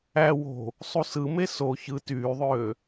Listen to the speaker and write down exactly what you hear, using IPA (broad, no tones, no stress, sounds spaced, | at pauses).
æ w o̤ | sˤ u s ɯ m e s o ç ɯ t yː ðˤ øː